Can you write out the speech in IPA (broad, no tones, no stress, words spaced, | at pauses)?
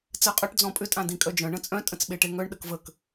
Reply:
t͡sɜqʼœʈ d͡zɔ̃pʼʏ tʼãdĩkʼœd͡ʒœ̃ ɳə̃t͡sʼœ̃ tʼə̃t͡sɓeʈeŋœɳ ɗəkvək